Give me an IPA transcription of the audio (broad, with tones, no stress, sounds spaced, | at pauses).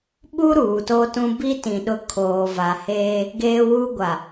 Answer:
ɓ u˦ ɾ uː˨ t o˦ t ũ˦ b i˦ t ĩ˨ ɗ ʊ˦ kʰ oː˨ v a˨ h eː˦ | ɡ eː˦ w uː˦ ɡʷ a˨